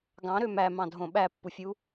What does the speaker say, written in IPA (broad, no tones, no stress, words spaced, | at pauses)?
ɡɑ̃ɾø mæmɑ̃dʱõ ɓæpːufʲu